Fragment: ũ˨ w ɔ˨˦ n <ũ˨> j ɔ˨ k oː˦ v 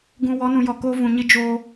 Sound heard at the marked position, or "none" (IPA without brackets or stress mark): ũ˨